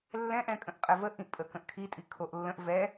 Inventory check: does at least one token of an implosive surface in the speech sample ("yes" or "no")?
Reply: no